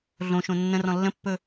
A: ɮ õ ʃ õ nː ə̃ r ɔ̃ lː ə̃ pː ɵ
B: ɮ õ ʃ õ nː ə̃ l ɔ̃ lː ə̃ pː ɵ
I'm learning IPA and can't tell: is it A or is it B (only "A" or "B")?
A